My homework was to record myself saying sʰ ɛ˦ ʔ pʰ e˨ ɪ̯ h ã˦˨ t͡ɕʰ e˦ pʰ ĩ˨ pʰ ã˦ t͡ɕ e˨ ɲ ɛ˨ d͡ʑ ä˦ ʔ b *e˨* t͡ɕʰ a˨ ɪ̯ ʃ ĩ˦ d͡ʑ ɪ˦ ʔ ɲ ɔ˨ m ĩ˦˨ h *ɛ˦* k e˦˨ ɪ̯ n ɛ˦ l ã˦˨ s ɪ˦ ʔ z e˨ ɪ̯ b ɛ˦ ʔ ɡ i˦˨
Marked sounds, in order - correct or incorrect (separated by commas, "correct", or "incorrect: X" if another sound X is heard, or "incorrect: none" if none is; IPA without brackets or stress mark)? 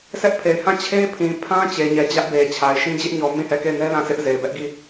correct, incorrect: ɛ˦˨